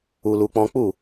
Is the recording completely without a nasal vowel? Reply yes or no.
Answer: no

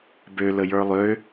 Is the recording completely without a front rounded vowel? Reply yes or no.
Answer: no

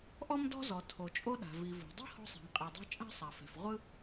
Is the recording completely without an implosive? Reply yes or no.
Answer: no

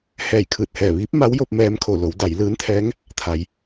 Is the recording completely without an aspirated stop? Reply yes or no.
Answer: no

